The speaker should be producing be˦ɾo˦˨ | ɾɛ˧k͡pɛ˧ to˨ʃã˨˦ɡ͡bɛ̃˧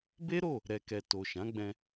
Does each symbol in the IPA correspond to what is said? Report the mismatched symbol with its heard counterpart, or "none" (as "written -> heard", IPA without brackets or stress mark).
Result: k͡p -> k